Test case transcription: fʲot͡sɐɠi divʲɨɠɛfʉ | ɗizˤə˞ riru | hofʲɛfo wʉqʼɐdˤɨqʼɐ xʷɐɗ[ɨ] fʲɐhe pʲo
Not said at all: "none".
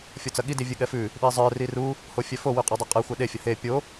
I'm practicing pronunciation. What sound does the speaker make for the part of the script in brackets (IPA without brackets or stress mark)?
e